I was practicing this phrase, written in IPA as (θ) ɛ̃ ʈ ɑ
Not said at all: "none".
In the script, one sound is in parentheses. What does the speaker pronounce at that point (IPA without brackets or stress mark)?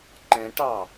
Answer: ǃ